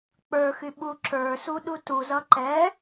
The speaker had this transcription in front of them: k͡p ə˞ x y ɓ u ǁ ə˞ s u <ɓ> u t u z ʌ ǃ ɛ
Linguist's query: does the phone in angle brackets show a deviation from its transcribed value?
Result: yes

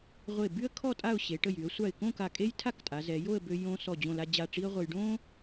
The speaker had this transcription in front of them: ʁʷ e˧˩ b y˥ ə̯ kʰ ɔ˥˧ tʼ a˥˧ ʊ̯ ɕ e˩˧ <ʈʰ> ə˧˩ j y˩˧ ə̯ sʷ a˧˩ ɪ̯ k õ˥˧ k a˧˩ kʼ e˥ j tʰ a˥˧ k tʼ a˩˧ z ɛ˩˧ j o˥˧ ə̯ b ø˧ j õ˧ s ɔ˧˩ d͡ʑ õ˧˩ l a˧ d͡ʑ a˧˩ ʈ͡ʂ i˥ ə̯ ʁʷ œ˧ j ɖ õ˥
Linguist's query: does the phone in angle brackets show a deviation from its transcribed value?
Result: yes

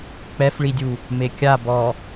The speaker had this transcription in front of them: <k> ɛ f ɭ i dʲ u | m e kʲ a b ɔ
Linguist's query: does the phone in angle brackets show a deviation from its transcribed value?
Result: yes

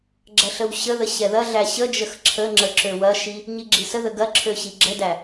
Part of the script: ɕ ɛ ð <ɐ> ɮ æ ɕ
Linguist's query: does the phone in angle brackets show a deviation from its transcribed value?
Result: no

